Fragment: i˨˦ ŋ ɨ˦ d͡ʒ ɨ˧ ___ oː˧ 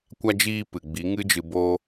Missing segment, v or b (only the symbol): b